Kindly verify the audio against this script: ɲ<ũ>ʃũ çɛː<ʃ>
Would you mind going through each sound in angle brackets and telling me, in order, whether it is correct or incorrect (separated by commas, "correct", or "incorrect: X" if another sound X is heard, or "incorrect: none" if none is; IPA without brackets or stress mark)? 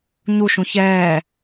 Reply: incorrect: u, incorrect: none